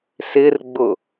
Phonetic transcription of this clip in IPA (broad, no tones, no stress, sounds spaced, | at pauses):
s ɪ r ɡ͡b ʊ